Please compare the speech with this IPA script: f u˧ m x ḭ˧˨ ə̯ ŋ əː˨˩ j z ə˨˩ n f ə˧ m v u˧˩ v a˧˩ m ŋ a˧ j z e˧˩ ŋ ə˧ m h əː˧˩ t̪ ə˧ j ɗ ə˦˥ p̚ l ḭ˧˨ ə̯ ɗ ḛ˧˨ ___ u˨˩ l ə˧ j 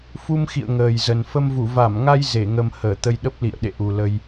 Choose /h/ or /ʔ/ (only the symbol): ʔ